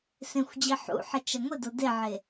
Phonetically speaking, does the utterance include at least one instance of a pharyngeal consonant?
yes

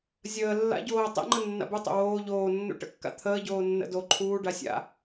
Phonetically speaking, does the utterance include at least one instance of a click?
yes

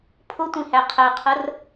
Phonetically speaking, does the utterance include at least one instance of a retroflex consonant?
no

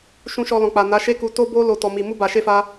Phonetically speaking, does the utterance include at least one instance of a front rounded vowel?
no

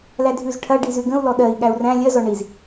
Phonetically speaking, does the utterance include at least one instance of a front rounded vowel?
no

